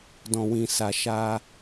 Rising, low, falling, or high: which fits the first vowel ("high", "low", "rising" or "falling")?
low